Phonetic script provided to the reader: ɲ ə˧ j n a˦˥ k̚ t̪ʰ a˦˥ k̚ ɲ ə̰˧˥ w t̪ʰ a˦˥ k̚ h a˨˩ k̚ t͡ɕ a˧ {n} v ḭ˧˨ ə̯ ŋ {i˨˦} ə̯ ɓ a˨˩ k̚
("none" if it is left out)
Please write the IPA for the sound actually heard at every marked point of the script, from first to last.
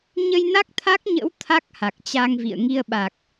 ŋ, i˧

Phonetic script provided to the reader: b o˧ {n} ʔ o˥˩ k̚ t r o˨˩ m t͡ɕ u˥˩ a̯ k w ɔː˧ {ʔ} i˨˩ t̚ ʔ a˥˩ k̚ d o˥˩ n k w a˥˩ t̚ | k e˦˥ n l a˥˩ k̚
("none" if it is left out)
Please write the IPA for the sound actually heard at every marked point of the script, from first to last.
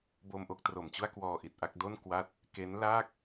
m, ʔ

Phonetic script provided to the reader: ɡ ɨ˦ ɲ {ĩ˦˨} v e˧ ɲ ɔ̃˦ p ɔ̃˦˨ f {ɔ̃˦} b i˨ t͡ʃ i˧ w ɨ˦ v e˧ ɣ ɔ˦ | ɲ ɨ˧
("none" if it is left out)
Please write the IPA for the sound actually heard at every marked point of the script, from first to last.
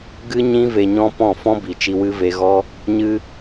ĩ˦, ɔ̃˦

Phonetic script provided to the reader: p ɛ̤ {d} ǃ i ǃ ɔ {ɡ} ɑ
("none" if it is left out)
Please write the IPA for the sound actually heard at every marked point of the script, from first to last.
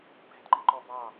d, b

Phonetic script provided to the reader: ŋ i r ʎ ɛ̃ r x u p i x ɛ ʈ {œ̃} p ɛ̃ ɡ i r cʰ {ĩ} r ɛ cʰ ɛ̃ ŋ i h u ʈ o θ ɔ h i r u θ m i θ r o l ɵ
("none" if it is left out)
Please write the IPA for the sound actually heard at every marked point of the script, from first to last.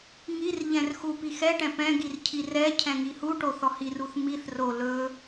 ɛ̃, i

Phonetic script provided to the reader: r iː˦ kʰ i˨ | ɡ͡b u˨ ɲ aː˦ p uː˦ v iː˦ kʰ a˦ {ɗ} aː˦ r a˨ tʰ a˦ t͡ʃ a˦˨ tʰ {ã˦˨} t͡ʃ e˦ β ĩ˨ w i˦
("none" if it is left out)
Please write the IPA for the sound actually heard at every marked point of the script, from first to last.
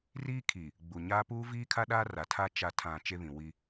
ɗ, ã˦˨

